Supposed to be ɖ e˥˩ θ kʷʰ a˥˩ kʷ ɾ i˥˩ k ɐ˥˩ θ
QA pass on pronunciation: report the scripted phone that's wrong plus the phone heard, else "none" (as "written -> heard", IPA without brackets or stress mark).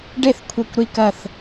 none